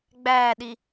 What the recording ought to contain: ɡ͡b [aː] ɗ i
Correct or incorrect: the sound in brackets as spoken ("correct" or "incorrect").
incorrect